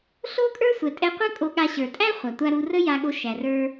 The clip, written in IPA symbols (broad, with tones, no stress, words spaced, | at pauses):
ɬo˥kʼə˞˥ sʷɛ˩tʼɛ˧qʷə˥ kʼo˧ɠa˧ ɕə˞˩tʼæ˥ χʷa˩tʷa˧ɾu˧ rə˥ja˧ɠo˧ ʃæ˩rə˞˧